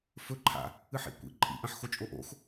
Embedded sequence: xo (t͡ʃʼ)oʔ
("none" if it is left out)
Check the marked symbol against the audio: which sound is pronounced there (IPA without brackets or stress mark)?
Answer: t͡ʃʼ